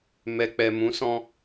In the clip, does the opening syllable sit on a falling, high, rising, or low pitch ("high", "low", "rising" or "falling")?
low